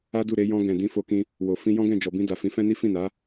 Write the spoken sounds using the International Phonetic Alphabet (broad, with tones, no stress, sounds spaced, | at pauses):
a˦ d u˦˨ ɾ e˧ j ɔ̃˧ ɡ ɛ̃˨ d ĩ˧ f o˧ k ĩ˧ | w o˨ f ĩ˧ j ɔ̃˦ ɡ ɛ̃˦˨ d͡ʒ ɔ˨ b ĩ˧ d a˨ f ĩ˨˦ f ɛ̃˦ n i˦ f ĩ˦˨ n a˨˦